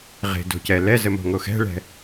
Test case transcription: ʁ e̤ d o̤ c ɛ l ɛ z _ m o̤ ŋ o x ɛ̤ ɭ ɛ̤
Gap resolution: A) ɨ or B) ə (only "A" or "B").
B